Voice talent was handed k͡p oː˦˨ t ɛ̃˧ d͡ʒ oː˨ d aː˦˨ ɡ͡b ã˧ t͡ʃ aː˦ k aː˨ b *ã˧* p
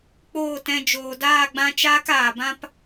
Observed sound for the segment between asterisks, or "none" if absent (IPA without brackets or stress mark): ã˦